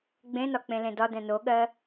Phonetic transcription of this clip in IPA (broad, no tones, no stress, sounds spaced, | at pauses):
ɡ͡b ẽ n ɒ k͡p ẽ l ẽ d ɒ d ɛ̃ n o ɠ ɜ